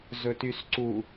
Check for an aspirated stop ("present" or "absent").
absent